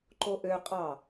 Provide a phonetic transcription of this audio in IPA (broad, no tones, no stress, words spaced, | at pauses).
ǃoʔø qʼɑ